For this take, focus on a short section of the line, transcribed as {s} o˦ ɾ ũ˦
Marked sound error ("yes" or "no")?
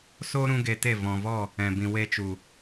no